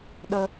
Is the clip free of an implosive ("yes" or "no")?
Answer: no